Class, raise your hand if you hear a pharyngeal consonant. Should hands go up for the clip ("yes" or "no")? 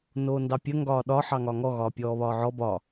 yes